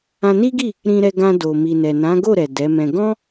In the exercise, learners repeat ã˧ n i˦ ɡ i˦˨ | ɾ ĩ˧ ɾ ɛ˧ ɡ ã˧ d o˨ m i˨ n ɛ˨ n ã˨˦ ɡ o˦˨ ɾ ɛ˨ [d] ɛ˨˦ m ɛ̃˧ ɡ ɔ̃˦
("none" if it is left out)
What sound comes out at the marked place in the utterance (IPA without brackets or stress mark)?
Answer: d